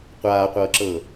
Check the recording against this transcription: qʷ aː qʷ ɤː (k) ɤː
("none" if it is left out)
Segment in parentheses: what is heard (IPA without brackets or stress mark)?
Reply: ǁ